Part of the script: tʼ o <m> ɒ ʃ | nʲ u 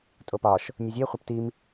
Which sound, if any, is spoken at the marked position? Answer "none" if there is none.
p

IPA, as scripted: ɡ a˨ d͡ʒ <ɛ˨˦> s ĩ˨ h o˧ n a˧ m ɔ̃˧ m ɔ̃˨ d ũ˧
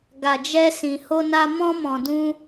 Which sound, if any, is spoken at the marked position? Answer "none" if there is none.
ɛ˧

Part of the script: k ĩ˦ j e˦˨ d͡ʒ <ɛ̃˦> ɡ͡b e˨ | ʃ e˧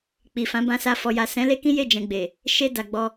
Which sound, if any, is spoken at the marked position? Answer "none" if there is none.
ɛ̃˨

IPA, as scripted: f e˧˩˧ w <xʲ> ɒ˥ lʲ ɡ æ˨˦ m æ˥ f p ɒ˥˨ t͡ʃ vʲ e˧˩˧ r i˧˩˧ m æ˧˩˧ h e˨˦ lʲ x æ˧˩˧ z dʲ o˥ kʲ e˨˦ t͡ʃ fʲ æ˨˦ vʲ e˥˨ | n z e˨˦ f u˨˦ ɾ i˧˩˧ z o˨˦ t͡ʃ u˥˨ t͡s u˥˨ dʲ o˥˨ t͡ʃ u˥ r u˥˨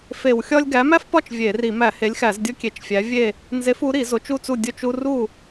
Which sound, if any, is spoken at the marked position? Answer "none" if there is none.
xʲ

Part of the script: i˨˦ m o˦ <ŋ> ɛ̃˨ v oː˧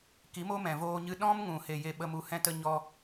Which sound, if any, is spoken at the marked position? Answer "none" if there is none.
m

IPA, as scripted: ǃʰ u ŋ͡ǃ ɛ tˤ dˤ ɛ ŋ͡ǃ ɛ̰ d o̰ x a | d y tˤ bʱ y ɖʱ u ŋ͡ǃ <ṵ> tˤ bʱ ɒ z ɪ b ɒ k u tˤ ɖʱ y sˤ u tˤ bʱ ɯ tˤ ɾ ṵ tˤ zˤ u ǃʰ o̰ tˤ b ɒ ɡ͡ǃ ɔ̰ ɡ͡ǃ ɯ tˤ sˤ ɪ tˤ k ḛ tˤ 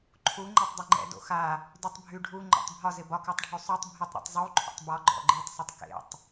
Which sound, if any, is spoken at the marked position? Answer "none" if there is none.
o̰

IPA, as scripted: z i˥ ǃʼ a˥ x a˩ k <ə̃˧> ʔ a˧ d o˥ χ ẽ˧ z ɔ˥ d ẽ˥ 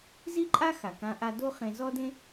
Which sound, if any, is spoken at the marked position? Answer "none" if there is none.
ã˧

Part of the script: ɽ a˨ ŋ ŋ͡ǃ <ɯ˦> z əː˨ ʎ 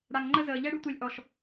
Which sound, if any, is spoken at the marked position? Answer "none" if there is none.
ə˦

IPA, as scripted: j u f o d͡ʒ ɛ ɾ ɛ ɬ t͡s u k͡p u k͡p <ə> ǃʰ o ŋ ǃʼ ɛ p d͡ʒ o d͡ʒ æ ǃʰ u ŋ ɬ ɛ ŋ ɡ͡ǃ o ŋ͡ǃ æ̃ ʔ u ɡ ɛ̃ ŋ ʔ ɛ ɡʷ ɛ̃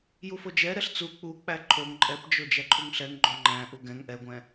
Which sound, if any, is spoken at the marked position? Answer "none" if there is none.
æ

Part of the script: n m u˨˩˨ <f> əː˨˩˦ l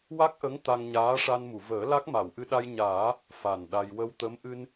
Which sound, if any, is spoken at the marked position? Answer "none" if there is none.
v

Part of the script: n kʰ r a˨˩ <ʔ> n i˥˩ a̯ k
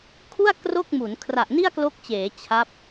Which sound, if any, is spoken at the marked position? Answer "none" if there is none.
ʔ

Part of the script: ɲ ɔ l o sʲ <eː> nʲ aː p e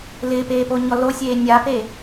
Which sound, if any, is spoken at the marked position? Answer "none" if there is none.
eː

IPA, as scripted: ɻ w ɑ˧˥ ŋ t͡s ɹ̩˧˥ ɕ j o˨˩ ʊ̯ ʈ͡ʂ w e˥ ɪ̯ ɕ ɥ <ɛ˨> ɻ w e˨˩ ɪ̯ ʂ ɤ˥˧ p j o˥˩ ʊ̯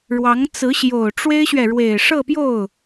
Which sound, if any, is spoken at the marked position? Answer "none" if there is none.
ɛ˨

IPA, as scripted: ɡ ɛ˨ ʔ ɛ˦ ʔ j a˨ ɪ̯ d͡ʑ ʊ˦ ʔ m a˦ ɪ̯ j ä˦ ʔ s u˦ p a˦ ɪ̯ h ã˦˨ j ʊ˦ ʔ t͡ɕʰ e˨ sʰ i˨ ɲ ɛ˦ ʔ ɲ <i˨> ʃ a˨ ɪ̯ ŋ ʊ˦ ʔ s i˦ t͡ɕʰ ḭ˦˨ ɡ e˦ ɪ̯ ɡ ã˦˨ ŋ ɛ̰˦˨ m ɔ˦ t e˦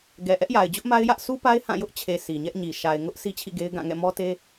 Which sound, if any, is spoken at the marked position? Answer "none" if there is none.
i˨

